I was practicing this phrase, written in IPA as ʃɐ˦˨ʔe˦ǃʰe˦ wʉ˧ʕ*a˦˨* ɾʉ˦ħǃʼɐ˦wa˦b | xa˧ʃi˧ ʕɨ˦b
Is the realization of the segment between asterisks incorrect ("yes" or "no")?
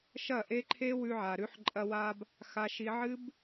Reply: yes